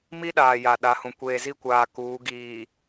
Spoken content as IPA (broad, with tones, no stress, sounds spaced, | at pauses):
m i˦ ɗ aː˨ j a˨ ɗ a˨˦ h ũ˨ kʷ eː˨ z i˦˨ kʷ aː˨ k uː˨˦ ɡ iː˨